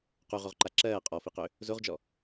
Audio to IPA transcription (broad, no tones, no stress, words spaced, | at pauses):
quʁoʁǃa ǁɜː qʼɔfiqø | zoʁd͡ʒɔ